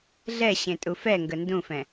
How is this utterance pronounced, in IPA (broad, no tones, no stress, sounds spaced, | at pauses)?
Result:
ɮ ɛ ɕ ẽ tʼ u f ɛ ŋ ɡ ə n d ũ f ɛ̃